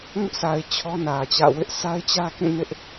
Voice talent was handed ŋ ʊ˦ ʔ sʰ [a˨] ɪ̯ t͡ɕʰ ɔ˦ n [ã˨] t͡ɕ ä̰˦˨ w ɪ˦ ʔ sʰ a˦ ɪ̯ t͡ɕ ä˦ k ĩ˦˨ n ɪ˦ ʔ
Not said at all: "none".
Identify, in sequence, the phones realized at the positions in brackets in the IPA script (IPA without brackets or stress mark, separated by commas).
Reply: a˨, ä˨